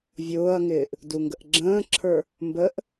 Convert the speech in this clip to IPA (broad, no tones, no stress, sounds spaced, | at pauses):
vʲ ʊː ɐ̯ ŋ ɪː ʔ | d u ŋ ɡ ə ʔ ɡ͡ǁ ə̃ː ǁʰ ə˞ | m b ə ʔ